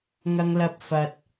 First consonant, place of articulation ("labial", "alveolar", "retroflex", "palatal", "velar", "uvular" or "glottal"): velar